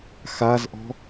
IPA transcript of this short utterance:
xazʔɔ̤

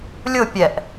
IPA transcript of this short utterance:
lʲʊ pʲɛʔ

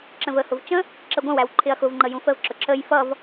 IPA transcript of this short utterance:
ǁə̃vəhʊv t͡ʃə̃ | ǁəɡʷə̃wæw ǃʰɪɐ̯xʊvŋ͡ǃə jũfəvǁʊ ǁəj fʌv

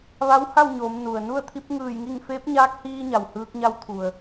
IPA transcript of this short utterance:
ʋa˧˥wha˥˨wɲoː˩˧mnu˩ə̯ nu˥˨ə̯ t̪ʰi˧˥p̚ŋɯː˧˩jŋi˥˨ŋ feː˧˥p̚ɲaː˧˥k̚hiː˧ ɲa˩whɯː˧k̚ɲa˧˥w t̪ʰu˩ə̯

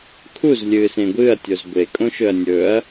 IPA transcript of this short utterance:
kʰuz lʲɨːsẽɡʷɨːɐ̯tʲoz ɡʷe kʼõʃɵɐ̯nʲɵɐ̯

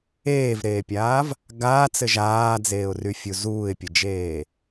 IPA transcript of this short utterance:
eːvɾeːpʲaːv | ɡaːt͡sɘ ʒaːd͡zeːʊ̯ry fʲuzuːɪ̯pʲɘd͡ʒeː

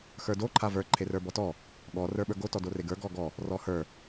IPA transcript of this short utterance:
xə˞do ǃʰavə˞ ǃʰerə˞bɔtɔ | ɠɔ rə˞ɓə˞ɡo tɔdoreɡə˞ ɡɔɡɔ | rɔhə˞

